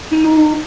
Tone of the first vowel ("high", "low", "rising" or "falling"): high